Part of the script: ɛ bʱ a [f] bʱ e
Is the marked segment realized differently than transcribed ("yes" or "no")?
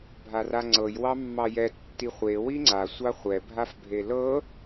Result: no